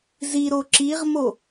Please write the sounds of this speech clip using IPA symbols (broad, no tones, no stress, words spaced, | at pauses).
ziɾo ǁiʁmo